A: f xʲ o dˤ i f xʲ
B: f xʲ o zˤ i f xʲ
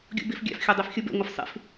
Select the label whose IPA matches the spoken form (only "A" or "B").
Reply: A